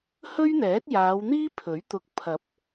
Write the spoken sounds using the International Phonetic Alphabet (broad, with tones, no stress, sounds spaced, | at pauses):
h ɵ˥ ɥ n̪ ɛː˨˥ t̚ j aː˨˧ w n̪ iː˥ pʰ ɵ˨˥ ɥ t̪ ʊ˧ k̚ pʰ ɐ˨˥ p̚